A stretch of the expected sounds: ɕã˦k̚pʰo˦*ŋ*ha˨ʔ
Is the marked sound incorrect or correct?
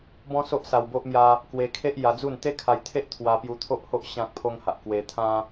correct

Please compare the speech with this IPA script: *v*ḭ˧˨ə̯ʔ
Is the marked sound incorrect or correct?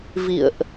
correct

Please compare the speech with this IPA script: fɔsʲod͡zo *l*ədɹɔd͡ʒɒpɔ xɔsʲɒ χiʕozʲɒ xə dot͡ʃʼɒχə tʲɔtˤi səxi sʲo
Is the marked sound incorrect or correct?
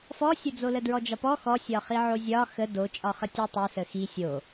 correct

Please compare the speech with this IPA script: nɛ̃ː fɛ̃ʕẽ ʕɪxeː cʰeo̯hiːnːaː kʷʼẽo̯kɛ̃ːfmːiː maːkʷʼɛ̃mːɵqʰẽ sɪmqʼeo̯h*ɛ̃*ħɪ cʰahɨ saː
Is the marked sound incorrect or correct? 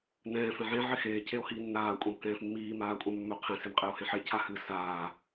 incorrect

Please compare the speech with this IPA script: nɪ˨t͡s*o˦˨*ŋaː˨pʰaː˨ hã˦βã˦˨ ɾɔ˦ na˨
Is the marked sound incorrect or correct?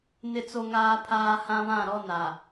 incorrect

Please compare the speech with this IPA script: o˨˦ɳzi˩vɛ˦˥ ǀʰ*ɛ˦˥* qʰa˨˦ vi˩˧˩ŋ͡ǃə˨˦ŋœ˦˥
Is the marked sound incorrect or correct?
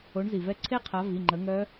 incorrect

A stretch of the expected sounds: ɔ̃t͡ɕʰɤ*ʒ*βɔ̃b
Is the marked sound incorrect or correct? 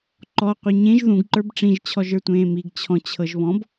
correct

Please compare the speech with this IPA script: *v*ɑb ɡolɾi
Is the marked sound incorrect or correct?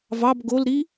correct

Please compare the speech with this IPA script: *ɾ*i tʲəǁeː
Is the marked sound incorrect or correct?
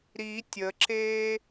correct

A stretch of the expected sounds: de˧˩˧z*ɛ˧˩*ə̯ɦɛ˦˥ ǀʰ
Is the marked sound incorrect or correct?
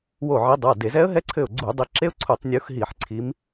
incorrect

